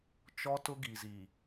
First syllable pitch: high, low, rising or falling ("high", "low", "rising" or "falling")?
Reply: high